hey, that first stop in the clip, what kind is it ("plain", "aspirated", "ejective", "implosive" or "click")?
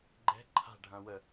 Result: click